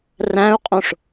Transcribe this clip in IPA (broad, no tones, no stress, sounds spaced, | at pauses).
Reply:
r æ̃ u̯ qʼ õ ʂ